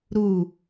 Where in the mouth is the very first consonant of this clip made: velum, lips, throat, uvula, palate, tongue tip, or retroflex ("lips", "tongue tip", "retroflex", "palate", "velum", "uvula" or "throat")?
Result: tongue tip